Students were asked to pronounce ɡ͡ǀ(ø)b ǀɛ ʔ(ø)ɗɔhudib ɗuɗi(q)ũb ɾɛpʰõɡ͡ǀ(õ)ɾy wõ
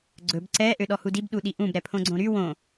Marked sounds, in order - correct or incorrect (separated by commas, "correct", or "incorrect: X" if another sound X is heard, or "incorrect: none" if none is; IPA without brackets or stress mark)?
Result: incorrect: ɵ, correct, incorrect: ʔ, correct